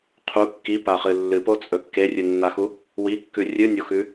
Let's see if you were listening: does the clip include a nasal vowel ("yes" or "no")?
no